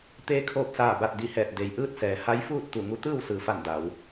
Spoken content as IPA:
t̪ eː˧˥ kʰ oː˧ p̚ s aː˧˩ b a˧˩ t̚ d i˧˩ h ɛː˧˩ t̚ d e˩˧ j ʔ ɯː˥˨ t̚ s ɛː˩ h a˧˥ j f uː˥˨ t̚ t̪ u˧˩ ŋ u˧˥ t̪ ɯː˥˨ w s ɯː˩ f a˧˩ n d a˩˧ w

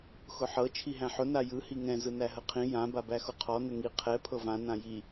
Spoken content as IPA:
x ʊ ħ ɤ t͡ʃʰ i ɦ æ̃ ħ ʊ n a j ɯ h i ŋ ɛ̃ z ɯ n æ ɦ ə qʰ ĩ j ã b a b æ x ʊ qʰ ɔ n ə ŋ i qʰ ɛ pʰ ɤ v ã n ã j i

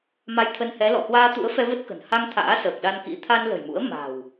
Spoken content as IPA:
m a˧ j t̪ʰ ə˧ n h ɛ˨˦ l ɔ̰˧˨ h w aː˧ t̪ ṵ˧˥ ə̯ f ɛ˧ v ə˦˥ t̚ k ə̤˨˩ n h a˧ ŋ t̪ʰ a̰ː˧˥ s əː˨˩ k̚ ɗ a˧ n k ḭ˧˥ t̪ʰ a˧ n l ə̤˨˩ j m ṵ˧˥ ə̯ m a̤˨˩ w

